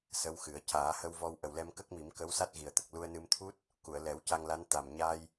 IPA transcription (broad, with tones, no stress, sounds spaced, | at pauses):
s ə˧˥ w x ɨ˨˩˦ ə̯ c aː˨˩˦ h ə˧ w v ɔ˧ w ʔ ə˨˩ w l ɛ˧ m k ə˦˥ k̚ m i˨˩˦ m k ə˧˥ w s a˦˥ t̚ ɣ i˨˩ ə̯ t̪ ə˨˩ k̚ l u˧ ə̯ n ɨ˧ m t̪ʰ u˦˥ t̚ | k u˨˩˨ ə̯ l ɛ˨˩˦ w c a˧ ŋ l a˧˥ n t̪ a˨˩ m ɲ a˧ j